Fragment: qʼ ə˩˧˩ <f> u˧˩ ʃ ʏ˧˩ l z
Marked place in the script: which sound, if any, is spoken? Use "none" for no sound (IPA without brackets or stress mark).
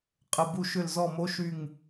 b